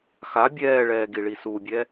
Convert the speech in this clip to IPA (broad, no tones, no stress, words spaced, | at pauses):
xa bʲɛːɭɛː ɡiɭisubʲɛ